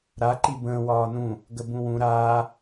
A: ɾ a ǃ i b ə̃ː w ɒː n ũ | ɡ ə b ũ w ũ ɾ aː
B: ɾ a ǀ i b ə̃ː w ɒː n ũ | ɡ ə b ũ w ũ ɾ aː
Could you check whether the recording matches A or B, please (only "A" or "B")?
A